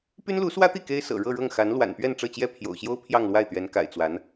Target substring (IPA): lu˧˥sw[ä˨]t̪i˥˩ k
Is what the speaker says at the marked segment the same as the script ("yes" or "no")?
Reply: no